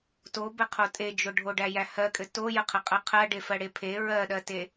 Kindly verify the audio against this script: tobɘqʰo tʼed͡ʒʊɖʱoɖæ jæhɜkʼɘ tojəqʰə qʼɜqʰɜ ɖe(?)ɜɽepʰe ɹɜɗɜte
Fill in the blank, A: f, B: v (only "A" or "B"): A